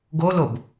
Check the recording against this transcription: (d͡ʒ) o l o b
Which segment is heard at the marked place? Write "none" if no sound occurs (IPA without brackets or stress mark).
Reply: ɡ